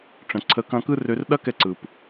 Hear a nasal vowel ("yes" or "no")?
yes